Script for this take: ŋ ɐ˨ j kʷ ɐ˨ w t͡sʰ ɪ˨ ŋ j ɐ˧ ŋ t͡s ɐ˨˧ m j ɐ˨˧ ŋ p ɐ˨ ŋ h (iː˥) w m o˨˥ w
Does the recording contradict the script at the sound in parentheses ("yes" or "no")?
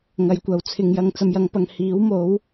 yes